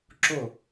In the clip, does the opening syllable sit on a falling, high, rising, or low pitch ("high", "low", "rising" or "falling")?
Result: falling